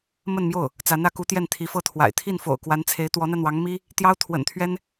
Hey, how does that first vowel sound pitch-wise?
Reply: falling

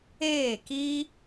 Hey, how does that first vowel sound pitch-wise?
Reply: falling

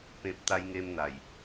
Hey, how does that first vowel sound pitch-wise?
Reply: low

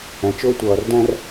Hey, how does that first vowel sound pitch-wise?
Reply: low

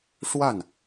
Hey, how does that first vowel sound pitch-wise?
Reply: falling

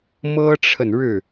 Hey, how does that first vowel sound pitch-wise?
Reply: high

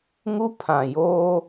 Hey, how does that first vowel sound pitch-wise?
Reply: high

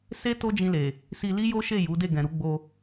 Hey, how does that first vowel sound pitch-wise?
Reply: high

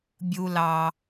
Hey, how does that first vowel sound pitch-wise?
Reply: low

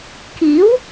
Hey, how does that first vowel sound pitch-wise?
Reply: rising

